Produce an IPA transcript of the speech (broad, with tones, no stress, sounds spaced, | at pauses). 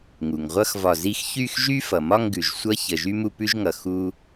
ŋ u˩ ŋ ʁʷ ʌ˥ x v ɒ˧˩ z i˥˧ x ç y˥˧ x ʒ y˥ f ʌ˩ m ɒ˥˧ ŋ ɡ ʉ˩ ʒ sʷ ʌ˥ ç ə˩ ʒ y˥ m u˥˧ p ʉ˥ ʒ ŋ ʌ˩ x u˥